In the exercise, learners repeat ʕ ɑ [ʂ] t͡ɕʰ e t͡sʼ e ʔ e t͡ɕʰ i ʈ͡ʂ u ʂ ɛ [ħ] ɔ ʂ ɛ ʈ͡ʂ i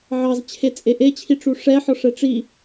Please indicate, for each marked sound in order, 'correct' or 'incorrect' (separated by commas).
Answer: incorrect, correct